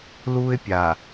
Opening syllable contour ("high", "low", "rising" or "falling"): high